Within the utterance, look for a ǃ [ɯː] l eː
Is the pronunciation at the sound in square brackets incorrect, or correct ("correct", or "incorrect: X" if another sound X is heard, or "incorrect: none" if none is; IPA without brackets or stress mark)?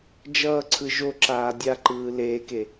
correct